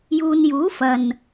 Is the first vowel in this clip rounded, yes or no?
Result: yes